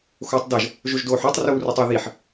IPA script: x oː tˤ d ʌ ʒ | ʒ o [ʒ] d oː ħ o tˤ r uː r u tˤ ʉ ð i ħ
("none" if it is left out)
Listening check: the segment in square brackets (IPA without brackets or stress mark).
ʒ